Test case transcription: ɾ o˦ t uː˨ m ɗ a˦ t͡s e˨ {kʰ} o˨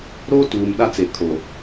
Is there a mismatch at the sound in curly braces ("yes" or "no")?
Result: no